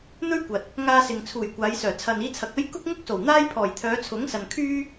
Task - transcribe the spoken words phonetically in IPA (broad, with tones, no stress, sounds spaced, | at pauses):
n̪ ɵ˥ ɥ kʷ ɐ˨ t̚ | ŋ aː˧ s ɪ˨ ŋ t͡sʰ uː˨˩ j kʷ aː˨˧ j s œː˨˩ t͡sʰ ɐ˨ n iː˧ t͡sʰ ɐ˨ k̚ ɐ˥ j k ʊ˥ k̚ ŋ ʊ˥ k̚ s o˨˩ w n̪ aː˥ j pʰ ɔː˨˩ j t̪ʰ œː˨˧ t͡sʰ ʊ˨˥ ŋ s ɐ˨ n kʰ yː˥